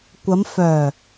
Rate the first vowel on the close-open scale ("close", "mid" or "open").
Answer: open